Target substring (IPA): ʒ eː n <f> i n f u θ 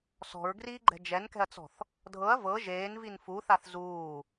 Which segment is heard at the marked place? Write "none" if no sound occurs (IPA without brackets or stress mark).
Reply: v